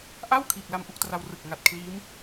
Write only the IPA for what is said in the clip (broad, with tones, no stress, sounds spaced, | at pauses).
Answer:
ʔ a˥˩ w kʰ iː˨˩ k̚ l a˧ m ʔ u˥˩ k̚ t r a˧ w r ɯ˨˩ k̚ ŋ a˨˩ t̚ kʰ l iː˦˥ m